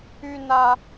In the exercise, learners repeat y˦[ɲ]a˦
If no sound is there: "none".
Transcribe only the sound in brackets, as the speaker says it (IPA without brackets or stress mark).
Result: n